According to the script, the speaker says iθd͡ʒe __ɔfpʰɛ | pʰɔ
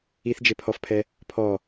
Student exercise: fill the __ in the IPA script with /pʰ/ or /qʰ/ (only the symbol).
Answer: pʰ